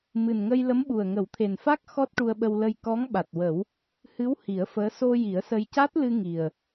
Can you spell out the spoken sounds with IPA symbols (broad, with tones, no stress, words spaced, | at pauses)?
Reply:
mɨ˨˩nŋə˧j lə˧˥mɓu˨˩ə̯ŋə˨˩˦w t̪ʰe˨˩nfa˦˥k̚ xɔ˦˥t̚ʈu˧ə̯ɓə˧wlə˧j kɔ˧˥ŋɓa˨˩t̚wə˨˩˦w | hɨ˧˥w hi˨˩˦ə̯fəː˧˥ so˧ ji˨˩˦ə̯sə˧j ca˦˥t̚lɨ˧ ŋi˨˩ə̯